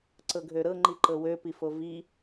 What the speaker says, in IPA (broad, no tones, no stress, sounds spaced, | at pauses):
ǀ ɤ ɡʱ ø ɾ ɤ ŋ͡ǃ i ǃ ɤ w ø p i f o v i